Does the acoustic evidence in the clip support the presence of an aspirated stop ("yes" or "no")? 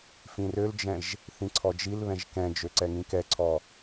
yes